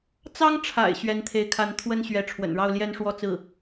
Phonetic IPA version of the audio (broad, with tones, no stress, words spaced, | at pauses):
t͡sɑ˥ŋʈ͡ʂʰa̰˨˩ɪ̯ ɕɥɛ˧˥nt̪ʰe˧˥ɪ̯kʰa˧˥n t̪ʰwə˥nɕɥɛ˧˥ʈ͡ʂʰwə̰˨˩n ɻɑ˥˧ʊ̯ljɛ˥˧nʂwɔ˥˧t͡sɹ̩˥˩